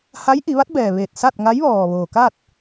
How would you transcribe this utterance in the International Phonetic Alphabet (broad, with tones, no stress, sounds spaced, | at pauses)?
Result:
h a˧˥ j ʔ i˩˧ ʋ a˧˥ t̚ b ɛː˩ ʋ eː˧˩ t̚ s a˥˨ t̚ ŋ a˧˥ j ʋ ɔː˩ ʋ oː˩ k a˥˨ t̚